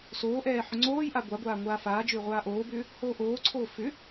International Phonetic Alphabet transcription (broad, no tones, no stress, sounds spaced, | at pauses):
s oː ʔ ɛː ħ ʏ ŋ͡ǀ oː j ʔ a ɡʷ a ɡʷ aː ŋʷ aː f aː d͡ʒ ʏː ʁʷ aː ʔ oː b ʏː | h oː ʔ oː ǀʰ oː f ʏ